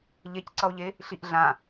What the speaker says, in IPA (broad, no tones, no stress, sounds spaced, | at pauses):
ʎ e c ǀ ʌ o̯ ʎ e | ɬ i ʔ ɮ ã